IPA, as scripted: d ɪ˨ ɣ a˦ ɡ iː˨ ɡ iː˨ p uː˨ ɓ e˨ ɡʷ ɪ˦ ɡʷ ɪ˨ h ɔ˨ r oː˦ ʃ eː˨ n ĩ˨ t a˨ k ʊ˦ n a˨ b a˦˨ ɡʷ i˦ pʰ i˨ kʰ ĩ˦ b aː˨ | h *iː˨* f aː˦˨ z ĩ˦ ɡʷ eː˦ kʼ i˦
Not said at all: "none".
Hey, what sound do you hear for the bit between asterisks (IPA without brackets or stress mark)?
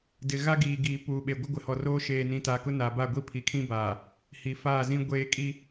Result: i˨